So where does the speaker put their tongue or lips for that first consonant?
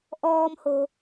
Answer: throat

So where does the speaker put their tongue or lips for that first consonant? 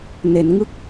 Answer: tongue tip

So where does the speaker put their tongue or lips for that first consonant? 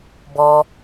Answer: lips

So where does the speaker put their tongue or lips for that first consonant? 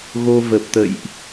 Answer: velum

